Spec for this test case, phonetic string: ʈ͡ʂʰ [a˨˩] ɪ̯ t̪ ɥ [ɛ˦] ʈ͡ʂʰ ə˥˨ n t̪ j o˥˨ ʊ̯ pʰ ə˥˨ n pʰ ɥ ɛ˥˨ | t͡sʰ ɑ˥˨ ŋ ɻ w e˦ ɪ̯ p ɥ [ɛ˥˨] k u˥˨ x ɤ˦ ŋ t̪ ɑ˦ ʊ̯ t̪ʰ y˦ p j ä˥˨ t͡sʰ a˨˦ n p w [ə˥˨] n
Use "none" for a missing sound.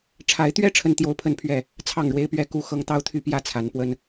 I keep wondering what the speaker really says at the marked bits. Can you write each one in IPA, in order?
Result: a˨˦, ɛ˦, ɛ˦, ə˦

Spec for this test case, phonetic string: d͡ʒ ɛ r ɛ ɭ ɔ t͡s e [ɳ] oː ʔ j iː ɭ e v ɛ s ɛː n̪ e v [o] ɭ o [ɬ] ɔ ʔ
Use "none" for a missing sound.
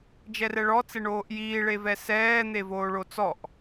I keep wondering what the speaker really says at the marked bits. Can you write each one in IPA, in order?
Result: ɳ, oː, t͡s

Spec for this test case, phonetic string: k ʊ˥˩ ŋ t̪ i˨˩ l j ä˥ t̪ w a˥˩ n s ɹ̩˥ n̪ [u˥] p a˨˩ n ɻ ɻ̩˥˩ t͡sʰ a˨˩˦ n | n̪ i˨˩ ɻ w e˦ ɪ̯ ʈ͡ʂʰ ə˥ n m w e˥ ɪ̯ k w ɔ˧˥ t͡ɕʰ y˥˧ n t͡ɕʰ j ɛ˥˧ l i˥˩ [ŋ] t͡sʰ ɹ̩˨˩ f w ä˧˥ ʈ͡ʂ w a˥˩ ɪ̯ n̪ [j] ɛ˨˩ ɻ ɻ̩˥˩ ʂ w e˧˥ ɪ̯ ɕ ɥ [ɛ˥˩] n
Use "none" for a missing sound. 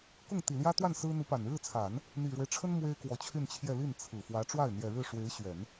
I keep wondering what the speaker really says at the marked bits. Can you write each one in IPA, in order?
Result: u˧˥, n, j, ɛ˨˩˦

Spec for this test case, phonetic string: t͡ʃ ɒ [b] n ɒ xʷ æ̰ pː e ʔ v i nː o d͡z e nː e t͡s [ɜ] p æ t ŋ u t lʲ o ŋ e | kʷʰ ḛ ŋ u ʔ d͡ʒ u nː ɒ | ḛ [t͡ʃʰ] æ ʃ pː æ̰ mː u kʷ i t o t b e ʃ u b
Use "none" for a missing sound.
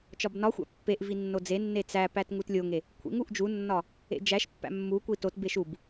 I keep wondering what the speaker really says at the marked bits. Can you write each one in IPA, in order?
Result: b, æ, d͡ʒ

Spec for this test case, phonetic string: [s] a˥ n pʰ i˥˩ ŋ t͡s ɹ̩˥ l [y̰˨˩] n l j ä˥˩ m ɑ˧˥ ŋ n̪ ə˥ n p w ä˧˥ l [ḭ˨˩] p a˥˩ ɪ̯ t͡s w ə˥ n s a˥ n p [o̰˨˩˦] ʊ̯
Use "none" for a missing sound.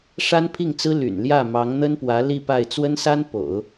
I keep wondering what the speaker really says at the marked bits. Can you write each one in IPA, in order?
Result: ʂ, y̰˨˩, i˥˧, o̰˨˩˦

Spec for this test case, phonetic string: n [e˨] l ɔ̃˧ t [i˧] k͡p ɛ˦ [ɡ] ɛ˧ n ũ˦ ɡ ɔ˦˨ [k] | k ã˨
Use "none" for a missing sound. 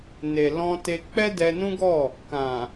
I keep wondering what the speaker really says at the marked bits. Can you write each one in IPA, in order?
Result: e˨, e˧, d, none

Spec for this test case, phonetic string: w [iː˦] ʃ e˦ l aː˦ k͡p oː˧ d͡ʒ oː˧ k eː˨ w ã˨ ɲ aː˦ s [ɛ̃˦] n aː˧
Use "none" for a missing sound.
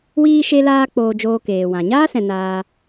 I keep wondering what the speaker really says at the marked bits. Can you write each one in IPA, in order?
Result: iː˦, ɛ̃˨

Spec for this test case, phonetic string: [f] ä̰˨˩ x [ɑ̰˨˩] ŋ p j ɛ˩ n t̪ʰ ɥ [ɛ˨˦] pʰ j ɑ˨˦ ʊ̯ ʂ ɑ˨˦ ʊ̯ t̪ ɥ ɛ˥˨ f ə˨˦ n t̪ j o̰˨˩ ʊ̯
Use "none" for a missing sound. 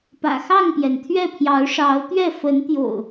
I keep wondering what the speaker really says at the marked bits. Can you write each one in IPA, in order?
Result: p, ɑ˥˨, ɛ˥˨

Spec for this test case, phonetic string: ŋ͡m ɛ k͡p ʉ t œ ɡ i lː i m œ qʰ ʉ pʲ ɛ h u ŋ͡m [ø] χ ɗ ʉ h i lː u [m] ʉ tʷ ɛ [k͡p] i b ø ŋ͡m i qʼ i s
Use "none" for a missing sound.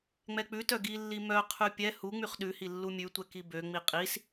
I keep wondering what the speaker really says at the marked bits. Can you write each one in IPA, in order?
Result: y, mʲ, k

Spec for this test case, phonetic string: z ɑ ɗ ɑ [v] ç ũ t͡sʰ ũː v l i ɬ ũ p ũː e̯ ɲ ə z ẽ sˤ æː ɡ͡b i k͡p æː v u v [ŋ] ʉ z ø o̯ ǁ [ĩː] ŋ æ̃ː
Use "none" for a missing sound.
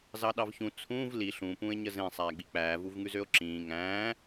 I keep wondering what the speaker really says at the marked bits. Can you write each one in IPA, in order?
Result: v, ŋ, ĩː

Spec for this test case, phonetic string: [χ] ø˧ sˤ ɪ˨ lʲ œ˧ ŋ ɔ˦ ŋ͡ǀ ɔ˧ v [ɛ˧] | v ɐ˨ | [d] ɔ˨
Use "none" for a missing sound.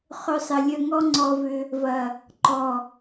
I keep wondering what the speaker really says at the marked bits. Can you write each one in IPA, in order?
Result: χ, ʏ˧, ǃ

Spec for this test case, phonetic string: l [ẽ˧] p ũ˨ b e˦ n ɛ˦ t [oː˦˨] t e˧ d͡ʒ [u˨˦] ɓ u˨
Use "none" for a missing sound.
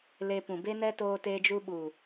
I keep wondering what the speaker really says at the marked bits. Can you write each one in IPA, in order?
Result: e˧, oː˧, u˧

